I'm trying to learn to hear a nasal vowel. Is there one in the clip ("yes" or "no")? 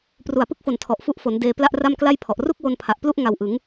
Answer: no